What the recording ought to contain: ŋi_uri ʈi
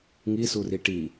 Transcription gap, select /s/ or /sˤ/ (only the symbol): s